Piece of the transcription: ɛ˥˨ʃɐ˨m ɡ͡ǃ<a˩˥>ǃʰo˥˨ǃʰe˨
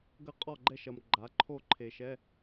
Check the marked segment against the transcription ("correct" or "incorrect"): correct